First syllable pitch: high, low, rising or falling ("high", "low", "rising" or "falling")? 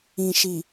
low